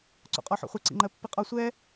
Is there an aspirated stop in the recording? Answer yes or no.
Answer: no